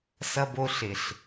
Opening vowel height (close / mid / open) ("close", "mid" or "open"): mid